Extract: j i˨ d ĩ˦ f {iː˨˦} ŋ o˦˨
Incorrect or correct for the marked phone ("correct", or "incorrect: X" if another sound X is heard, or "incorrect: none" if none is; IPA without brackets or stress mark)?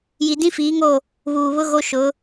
correct